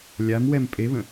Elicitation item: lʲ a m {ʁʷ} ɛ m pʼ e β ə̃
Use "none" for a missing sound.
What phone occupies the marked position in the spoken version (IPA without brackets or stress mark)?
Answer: w